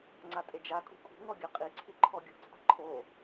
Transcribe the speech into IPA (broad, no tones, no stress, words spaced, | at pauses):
ŋ͡ǀatʼed͡ʒakʼṳ kʼṳŋɔ ɡʲaqʼiǀʰi ǃʰɔɡʲṳt͡sʼa̤ ǃʰo